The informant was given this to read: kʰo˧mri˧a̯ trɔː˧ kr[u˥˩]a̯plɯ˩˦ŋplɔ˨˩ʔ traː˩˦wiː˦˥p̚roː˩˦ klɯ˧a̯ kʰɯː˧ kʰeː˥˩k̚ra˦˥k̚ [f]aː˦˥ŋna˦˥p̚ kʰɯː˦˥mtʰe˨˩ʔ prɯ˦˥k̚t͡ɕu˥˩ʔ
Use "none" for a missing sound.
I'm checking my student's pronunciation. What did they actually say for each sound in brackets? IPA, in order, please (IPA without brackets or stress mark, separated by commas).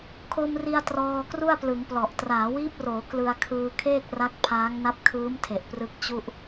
u˥˩, pʰ